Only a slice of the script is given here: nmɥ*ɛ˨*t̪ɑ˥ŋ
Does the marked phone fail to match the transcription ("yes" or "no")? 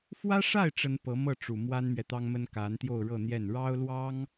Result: no